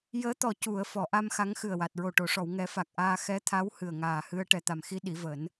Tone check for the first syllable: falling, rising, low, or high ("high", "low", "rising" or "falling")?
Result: rising